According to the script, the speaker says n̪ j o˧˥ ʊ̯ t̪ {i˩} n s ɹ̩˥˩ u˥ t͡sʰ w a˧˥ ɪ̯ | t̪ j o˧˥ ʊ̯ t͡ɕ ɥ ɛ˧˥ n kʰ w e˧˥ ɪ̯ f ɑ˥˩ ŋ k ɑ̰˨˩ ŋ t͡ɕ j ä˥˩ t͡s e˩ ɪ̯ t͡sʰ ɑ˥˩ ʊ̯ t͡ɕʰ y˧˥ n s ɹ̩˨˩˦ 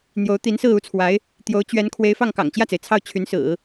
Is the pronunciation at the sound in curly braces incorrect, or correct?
incorrect